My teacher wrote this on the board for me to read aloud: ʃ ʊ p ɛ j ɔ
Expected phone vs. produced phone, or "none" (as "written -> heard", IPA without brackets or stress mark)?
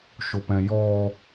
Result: ɛ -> ɛ̃